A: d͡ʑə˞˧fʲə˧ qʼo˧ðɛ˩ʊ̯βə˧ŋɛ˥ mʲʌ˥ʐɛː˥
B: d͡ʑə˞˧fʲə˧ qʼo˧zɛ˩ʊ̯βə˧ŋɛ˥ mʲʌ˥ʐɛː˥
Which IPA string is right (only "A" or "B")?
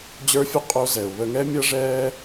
B